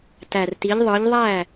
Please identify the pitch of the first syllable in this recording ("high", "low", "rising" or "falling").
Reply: low